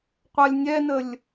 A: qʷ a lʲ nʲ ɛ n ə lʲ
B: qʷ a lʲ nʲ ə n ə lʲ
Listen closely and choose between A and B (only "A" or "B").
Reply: A